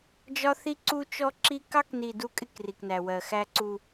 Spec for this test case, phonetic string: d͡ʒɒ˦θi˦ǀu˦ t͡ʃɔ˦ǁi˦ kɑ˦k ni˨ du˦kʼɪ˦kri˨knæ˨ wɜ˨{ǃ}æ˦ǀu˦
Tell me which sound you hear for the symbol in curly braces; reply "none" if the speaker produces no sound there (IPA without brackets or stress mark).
x